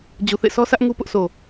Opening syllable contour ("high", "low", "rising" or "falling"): low